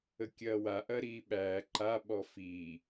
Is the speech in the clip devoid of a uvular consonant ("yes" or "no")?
yes